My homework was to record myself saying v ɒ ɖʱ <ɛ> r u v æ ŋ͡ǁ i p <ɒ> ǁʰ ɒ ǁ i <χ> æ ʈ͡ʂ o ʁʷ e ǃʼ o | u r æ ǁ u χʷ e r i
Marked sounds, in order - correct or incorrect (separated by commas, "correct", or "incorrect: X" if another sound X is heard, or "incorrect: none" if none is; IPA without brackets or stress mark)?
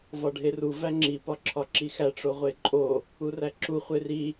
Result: incorrect: e, correct, incorrect: x